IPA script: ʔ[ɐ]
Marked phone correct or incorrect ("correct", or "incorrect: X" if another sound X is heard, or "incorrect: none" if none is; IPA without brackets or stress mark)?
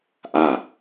incorrect: a